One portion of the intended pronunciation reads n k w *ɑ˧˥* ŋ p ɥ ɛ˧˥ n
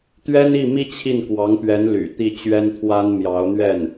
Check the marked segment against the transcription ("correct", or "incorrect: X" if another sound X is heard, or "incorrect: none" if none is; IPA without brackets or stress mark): correct